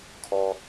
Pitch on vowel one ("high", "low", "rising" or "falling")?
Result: high